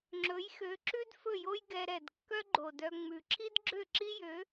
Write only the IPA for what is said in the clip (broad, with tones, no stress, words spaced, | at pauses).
ŋ͡ǁɵ˨˥jxø˨˥ ǁʉ˥d fɵ˥˨jo˥j ɡɛ˧ ɾɛ˨˩dkːœ˥ ɡ͡ǃo˨˩dœ˧ŋ͡mʉ˨˩ ǁʰi˥dɡ͡ǁø˥˨ǁi˥jø˨˥